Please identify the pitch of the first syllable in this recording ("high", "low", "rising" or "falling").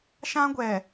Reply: high